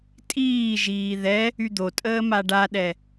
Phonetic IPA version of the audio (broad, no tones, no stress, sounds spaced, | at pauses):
tʼ iː ʒ iː ð ɛ | y d̪ o tʼ əː m a ɖ a ɗ ɛ